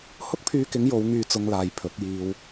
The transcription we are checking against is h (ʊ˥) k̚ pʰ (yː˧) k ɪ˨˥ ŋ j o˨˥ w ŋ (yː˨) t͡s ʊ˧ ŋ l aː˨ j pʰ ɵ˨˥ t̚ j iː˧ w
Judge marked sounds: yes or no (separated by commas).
yes, yes, no